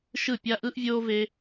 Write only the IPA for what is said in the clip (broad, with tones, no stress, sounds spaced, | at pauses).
ʃ ɯ˦˨ pʲ a˦ ʔ ɯ˦ ʔ vʲ oː˦ v e˦